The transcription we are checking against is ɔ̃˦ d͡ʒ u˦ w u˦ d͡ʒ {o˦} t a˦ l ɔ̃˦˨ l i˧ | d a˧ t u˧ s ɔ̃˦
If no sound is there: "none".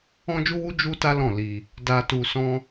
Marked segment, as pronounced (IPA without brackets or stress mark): u˦